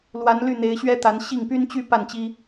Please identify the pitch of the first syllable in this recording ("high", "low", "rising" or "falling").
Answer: rising